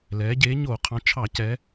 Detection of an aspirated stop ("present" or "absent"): present